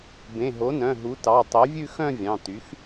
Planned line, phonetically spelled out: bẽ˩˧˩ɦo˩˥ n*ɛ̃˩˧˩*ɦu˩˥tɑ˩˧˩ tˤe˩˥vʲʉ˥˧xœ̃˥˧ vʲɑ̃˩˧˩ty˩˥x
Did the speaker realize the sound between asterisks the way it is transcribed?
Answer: no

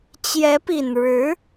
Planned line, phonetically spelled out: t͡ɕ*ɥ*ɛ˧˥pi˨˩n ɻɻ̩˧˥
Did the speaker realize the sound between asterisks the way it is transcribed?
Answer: no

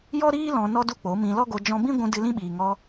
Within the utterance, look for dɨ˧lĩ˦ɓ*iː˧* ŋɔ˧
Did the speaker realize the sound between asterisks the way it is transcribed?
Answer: no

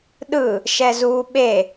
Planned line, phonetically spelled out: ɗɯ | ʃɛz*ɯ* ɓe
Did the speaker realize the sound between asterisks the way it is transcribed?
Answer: no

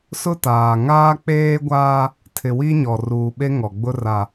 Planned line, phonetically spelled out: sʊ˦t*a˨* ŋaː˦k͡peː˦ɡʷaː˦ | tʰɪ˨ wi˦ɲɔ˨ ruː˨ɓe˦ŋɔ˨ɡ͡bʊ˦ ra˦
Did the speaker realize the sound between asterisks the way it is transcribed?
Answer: no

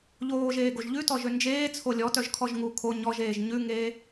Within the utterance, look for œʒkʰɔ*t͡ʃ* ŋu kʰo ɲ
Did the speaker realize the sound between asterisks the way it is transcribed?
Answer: no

